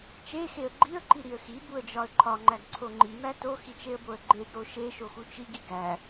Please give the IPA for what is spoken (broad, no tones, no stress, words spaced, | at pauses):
t͡ʃexeə̯ ɡ͡ǃiə̯ǃiɾiə̯ xibuə̯d͡ʒɒə̯ ǃʰɒŋ͡ǃæɡǀʰo ŋ͡ǃimæ toxit͡ʃeə̯boə̯ ɡ͡ǃeɡɾo ʃeʃoxu t͡ʃiɡi ɡæ